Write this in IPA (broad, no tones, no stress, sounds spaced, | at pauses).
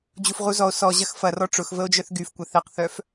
d͡ʑ u f ʁ u z ɔ o̯ s ɔ ʑ ɐ x f ɐ r ɔ ʈ͡ʂ ʊ x v ə o̯ d͡ʒ œ θ ɡ y f kʷ ɐ θ ɛ q θ œ f